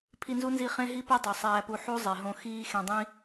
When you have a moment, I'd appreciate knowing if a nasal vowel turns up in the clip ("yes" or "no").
yes